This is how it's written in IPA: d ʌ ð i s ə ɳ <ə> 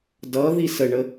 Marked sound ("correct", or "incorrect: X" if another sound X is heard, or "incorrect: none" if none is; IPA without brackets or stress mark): correct